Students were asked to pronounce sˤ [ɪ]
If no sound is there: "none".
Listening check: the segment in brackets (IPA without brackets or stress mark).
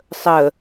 ə